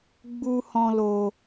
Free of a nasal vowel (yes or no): no